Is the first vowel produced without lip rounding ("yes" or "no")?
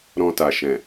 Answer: no